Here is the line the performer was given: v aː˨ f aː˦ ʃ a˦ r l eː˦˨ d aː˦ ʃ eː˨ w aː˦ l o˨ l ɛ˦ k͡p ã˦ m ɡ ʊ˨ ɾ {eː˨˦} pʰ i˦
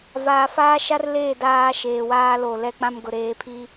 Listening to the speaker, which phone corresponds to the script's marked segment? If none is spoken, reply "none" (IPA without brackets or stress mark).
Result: eː˨˦